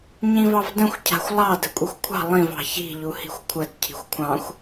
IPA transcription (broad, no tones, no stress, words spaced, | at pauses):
ɲĩvɑvdə̃xʷ cʰa̤xʷlˠɑ də̤kʷʼexʷkʷʰɑ̤ lˠĩv ɑ̤çi̤ ʎuhi̤xʷkʷʰəd cʰi̤xʷkʷʰɑ̃xʷ